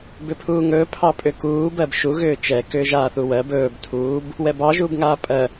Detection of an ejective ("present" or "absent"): present